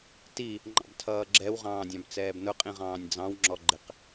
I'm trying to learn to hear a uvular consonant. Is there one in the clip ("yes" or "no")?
yes